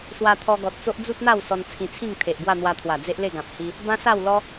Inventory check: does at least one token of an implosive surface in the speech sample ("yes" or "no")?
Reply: no